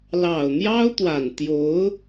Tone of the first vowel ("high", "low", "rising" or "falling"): low